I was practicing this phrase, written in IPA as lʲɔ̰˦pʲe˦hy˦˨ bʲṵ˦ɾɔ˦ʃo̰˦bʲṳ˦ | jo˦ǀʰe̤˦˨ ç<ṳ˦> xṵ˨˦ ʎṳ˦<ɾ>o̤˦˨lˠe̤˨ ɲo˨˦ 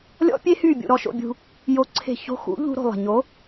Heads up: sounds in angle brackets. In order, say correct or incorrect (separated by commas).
incorrect, correct